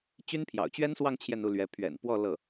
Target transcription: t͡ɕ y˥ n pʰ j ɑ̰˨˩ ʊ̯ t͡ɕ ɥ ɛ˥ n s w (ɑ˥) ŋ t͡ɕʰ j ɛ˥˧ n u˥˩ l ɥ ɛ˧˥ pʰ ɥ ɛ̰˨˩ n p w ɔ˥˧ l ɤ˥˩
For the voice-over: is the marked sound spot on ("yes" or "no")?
no